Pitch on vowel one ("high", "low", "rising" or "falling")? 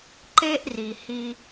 high